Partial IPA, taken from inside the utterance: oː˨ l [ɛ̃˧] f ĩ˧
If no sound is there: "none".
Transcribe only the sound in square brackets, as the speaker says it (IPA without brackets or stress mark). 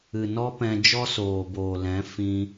ɛ̃˨˦